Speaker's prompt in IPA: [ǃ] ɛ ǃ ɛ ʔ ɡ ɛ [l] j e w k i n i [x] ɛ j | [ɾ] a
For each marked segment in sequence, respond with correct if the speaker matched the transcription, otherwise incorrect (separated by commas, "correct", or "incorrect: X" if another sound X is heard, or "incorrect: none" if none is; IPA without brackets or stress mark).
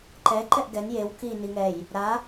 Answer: correct, incorrect: n, incorrect: ŋ, correct